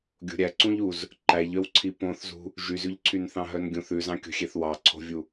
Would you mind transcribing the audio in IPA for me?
ɡʲ o̤ ɾʲ æ ǀ ũ ʎ u z | ǃ æ ʎ œ w ǀʰ i p õ θ z ṳ | ʒ y z ʉ ʎ ǀʰ y n θ ɑ̃ ɦ œ n ɡʲ ũ θ ʉ z ɑ̃ kʲ o̤ xʲ e θ w ɑ ǀʰ o̤ vʲ u

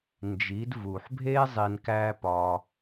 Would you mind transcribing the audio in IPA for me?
n d͡ʒ i˨˦ d v u˨ ħ bʱ eː˦ zˤ i˨ n k æː˧ p ɒː˧

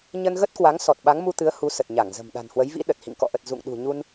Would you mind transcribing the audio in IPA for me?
ɲ ə˧ n ɣ ə˦˥ t̚ k w a˨˦ ŋ s ɔ˨˩ t̚ ɓ a˨˦ ŋ m u˧ t̪ ɨ˨˦ ə̯ h u˨˦ s ə˨˩ t̚ ɲ a˧˩ ŋ z ə̤˨˩ m ɗ a̤˨˩ n h w ə˨˦ j v ḭ˧˥ ɗ ə˨˩ t̚ h ḭ˧˨ ŋ k ɔ̰˧˨ ʔ ə˨˩ t̚ z ṵ˧˨ ŋ ɗ ṳ˨˩ ɲ u˧ n

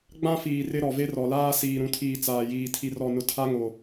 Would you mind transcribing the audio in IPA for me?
ɡ͡b ã˦ f iː˨ r ɪ˦ ɾ ɔ˨ v e˦ r ɔ˨ l aː˦ s iː˨ ɾ ũ˨ tʰ iː˨ t͡s aː˨ j iː˨ tʰ i˨ r ɔ˨ n ʊ˨ tʰ a˦ ŋ o˨

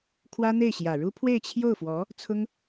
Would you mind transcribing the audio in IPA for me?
kʰ w ä˥ n̪ e˥˩ ɪ̯ ɕ j ä˨˩ ɻ u˥ pʰ w e˥˧ ɪ̯ t͡ɕʰ j o˥˩ ʊ̯ f w ɔ˧˥ | t͡sʰ ʊ˥ ŋ

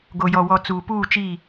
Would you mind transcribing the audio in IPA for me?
ɡ o˨ j ɔ˨ w ɔ˨ t͡s uː˨ p uː˦˨ t͡ʃ i˦˨

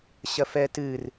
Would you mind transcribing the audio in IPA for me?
ɕ ɐ f ɛ t ɨ r

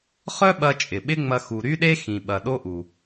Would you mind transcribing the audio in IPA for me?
χ œ˥ ɓ ɐ˧ t͡ʃʼ ɪ˩ ɓ ɪ˥ ŋ͡m ɐ˧ x u˩ ɾ y˥ ɗ e˥ x ĩ˩ ɓ ɐ˩ ɗ o˥ ʔ u˩

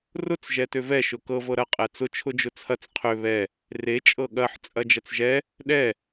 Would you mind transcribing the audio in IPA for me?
r ʊ t͡s ʒ ɛ t ø v ɛ ʃ ʊ k ɤ v ɤ ɾ ɐ qʼ ɛ t͡s ʊ t͡ʃʰ ʊ d͡ʒ ʊ t͡sʰ ɐ t͡s qʰ ø β ɛ | r e t͡ʃʼ ɤ ɠ ɐ ħ t͡sʼ ɐ d͡ʒ ɐ t͡s ʒ ɛ | ɗ ɛ

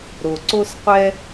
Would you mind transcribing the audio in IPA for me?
ɾ o˩ ǀ o˧ s qʷ ɛ˧

